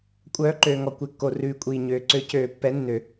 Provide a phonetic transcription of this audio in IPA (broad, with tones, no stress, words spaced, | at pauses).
kʷʼœː˨˦ǃøː˩ŋɔ˩ kʷe˩kːo˩ rʉː˩kʷʼiː˩ ɲøː˩ǀø˨˩˦cøː˨˩˦ pːɛ˨˦nːø˨˩˦